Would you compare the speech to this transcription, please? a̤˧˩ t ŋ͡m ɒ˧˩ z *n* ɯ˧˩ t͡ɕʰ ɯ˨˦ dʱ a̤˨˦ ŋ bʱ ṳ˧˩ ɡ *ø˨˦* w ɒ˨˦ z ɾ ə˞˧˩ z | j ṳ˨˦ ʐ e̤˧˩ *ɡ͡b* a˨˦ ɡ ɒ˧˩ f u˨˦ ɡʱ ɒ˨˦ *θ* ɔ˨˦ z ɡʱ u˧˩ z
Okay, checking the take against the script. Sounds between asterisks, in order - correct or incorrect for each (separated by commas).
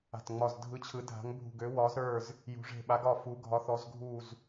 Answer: incorrect, correct, incorrect, correct